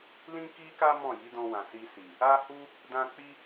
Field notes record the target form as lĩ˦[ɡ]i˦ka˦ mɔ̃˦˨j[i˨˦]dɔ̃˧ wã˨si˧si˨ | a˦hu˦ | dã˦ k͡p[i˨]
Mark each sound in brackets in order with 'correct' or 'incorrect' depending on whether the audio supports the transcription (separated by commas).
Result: incorrect, correct, incorrect